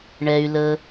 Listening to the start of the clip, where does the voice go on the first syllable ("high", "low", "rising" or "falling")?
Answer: low